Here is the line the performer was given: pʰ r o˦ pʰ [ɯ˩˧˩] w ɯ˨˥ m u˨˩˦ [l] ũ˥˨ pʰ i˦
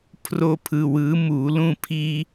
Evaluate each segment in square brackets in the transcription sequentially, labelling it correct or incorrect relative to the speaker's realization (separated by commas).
correct, correct